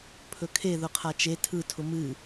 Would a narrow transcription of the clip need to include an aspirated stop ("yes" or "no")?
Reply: yes